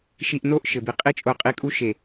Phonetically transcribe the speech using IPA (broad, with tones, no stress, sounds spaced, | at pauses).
ʃ i˧ ʔ n o˦ ʔ ʃ ɘ˨ b i˨ qʼ i˦ t͡ʃʼ o˧ qʼ i˧ kʼ u˦ ʃ e˨